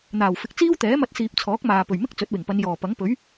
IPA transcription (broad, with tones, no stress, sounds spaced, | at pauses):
n̪ aː˨˩ w f ɪ˨ k̚ t͡s iː˥ w t̪ ɛː˨˥ m ɐ˧ t̚ s iː˨ p̚ t͡sʰ ɔː˨˥ k̚ m aː˨ p ɵ˨˩ ɥ m ɪ˥ k̚ t͡s ɵ˨˥ t̚ w ɪ˨˩ ŋ p ɐ˨˧ n j ɔː˨˩ p ɐ˨˥ ŋ p ɵ˨˥ ɥ